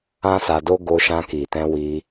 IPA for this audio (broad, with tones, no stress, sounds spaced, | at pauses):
ã˦ s a˧ d o˦ ɡ o˧ ʃ ã˧ k i˨ t ɛ̃˧ w i˧